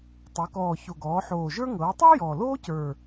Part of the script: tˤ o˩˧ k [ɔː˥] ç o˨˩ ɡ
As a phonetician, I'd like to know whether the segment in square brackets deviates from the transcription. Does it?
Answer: yes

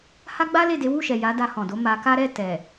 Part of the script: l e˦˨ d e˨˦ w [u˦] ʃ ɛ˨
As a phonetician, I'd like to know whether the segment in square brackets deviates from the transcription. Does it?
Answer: yes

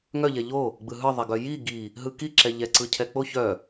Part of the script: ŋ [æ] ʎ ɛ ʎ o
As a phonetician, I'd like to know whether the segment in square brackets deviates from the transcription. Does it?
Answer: yes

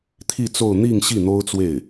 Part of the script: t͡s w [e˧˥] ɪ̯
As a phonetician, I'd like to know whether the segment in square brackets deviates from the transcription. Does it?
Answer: yes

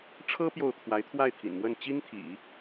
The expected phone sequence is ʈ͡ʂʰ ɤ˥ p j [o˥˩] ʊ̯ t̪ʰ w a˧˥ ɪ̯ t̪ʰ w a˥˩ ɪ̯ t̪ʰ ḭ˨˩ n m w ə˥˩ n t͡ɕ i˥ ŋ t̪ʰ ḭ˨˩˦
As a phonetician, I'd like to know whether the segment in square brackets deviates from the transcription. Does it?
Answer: no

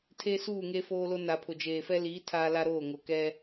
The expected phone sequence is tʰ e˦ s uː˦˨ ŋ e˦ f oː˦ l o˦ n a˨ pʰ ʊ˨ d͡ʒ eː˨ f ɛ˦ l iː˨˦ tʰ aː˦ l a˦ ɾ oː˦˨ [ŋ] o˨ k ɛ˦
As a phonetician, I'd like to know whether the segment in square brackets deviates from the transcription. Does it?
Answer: no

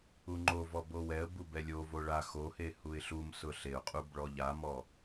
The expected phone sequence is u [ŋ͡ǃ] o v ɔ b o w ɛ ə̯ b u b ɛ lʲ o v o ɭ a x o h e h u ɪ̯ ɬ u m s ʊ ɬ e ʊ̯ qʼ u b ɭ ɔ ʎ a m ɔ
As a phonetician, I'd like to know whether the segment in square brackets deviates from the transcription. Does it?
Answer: no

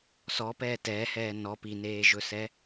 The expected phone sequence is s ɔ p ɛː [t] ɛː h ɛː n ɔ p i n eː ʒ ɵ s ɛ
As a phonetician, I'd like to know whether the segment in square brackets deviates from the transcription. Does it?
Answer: no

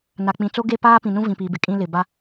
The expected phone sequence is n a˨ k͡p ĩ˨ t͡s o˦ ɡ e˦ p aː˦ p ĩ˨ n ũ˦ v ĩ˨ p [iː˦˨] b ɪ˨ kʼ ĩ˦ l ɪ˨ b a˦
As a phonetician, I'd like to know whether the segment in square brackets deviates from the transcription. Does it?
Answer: yes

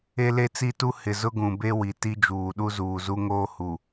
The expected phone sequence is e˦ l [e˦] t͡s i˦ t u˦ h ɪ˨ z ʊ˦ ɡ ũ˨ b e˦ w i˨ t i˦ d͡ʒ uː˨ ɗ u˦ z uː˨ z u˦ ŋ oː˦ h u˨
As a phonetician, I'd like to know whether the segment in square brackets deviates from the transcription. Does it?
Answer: no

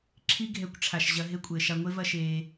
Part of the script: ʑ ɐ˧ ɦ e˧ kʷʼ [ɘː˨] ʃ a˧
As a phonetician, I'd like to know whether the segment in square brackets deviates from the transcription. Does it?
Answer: no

